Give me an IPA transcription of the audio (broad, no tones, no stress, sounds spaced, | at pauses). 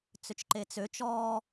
t͡s ø t͡ʃ ǃ e t͡s ø t͡ʃ ɔ